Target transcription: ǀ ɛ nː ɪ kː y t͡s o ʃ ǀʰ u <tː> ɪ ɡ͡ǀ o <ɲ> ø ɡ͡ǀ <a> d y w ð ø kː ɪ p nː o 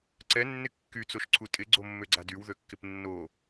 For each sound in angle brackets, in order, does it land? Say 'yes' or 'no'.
no, no, yes

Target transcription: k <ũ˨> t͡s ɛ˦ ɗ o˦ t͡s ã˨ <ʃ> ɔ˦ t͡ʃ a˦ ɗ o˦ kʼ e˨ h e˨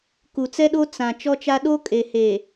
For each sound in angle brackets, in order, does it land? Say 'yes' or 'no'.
no, no

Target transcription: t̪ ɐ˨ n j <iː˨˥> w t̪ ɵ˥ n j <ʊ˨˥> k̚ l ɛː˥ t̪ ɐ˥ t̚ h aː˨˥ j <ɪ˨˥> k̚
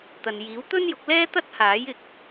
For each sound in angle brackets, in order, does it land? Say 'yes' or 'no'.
yes, yes, no

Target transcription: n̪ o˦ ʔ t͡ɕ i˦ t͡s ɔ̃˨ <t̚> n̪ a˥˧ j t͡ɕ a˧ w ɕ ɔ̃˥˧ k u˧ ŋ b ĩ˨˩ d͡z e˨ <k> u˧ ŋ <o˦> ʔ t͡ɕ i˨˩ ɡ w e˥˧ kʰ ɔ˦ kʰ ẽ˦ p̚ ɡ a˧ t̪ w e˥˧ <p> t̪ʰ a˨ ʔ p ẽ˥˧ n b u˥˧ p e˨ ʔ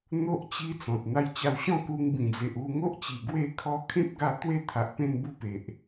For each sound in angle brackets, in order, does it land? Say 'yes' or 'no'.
yes, no, yes, no

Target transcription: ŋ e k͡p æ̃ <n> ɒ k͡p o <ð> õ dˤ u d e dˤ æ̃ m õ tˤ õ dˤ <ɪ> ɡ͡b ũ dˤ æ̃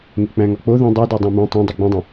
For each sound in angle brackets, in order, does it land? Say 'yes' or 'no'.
no, yes, no

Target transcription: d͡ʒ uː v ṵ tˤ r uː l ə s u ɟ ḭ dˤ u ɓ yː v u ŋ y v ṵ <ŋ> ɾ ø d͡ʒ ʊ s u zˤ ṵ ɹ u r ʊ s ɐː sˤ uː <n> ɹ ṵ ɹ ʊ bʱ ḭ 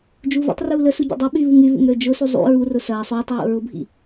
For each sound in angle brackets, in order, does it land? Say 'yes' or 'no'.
yes, no

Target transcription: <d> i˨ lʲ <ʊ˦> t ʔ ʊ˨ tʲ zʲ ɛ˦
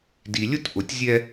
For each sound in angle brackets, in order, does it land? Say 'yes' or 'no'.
yes, yes

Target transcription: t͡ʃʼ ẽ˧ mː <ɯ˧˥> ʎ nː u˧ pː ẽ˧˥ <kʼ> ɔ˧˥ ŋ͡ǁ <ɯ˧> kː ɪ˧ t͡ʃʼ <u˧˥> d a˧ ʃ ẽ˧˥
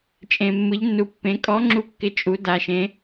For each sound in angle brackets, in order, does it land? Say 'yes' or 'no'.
yes, yes, no, yes

